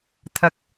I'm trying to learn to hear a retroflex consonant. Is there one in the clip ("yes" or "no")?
no